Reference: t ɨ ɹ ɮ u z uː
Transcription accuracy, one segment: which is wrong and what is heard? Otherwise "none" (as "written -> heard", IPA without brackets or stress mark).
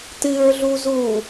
none